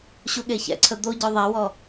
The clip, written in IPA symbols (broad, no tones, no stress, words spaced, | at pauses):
ɕuɠeçɛ̰ǀʰə d̪o ɟœðˤɛwɔ